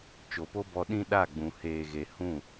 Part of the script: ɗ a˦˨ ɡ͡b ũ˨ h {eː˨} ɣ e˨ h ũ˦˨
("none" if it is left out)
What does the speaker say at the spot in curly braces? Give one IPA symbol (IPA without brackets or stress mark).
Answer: eː˨